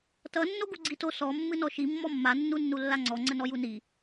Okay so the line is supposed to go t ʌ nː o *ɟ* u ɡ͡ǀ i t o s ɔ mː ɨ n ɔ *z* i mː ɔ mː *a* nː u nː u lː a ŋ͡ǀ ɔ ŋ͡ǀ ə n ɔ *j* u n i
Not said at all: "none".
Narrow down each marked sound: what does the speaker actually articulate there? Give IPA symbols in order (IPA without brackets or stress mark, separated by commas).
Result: ɡ, ʃ, a, j